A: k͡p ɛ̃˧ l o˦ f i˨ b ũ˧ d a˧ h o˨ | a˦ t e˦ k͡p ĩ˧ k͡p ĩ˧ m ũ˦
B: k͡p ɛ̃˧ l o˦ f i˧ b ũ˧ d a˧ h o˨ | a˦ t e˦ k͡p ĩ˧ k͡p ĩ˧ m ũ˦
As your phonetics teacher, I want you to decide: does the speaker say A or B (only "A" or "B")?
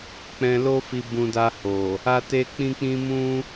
B